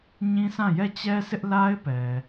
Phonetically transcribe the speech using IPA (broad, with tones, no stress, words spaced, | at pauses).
ɲĩ˦sã˦˨ jɛ˦˨t͡ɕɛ˦sɪ˦ʔ la˦ɪ̯ pɛ˨